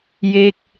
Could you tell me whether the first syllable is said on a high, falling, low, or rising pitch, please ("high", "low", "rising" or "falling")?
falling